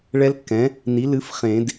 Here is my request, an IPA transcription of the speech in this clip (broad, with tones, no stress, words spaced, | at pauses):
ɭɛ˦˥lkːɛ̃˩˥ | ni˩˥ lɨ˩˥f χẽ˨˩˦d